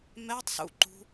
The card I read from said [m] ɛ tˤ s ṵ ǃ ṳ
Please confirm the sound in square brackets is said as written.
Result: yes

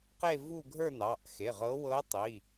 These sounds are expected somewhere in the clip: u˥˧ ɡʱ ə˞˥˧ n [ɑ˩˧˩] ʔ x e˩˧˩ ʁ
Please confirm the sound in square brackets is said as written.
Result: yes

